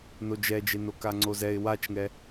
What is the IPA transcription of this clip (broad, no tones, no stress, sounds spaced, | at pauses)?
n o d͡ʒ ɛ d͡ʒ e n o k a ŋ͡ǀ o z ɛ ɪ̯ w a t͡ʃ ŋ ɛ